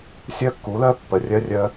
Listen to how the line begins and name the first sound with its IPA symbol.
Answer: sʲ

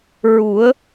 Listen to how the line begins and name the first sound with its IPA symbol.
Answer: ɹ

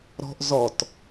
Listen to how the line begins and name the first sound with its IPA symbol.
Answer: ɾ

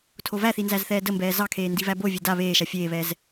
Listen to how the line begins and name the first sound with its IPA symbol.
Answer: tʰ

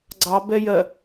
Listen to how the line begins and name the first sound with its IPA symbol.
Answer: ɡ͡ǀ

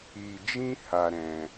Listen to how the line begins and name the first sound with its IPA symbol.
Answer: i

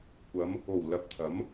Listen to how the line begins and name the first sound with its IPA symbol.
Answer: kʷ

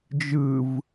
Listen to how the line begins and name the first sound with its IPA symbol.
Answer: d͡ʒ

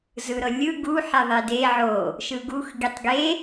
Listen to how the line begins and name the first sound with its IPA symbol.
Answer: z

